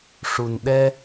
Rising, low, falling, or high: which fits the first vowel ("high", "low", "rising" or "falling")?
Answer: low